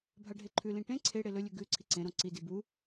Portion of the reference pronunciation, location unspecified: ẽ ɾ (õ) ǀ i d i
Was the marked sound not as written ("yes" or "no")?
no